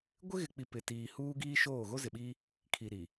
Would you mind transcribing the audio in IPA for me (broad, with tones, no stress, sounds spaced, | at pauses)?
ɡʷ ɪ˦ ɣ ɪ˨ k͡p i˨ p ɪ˨ t iː˨ h uː˦ ɡ iː˦ ʃ oː˦˨ ɣ o˦ z ɪ˨ ɓ i˦ | kʰ i˨ ɾ i˨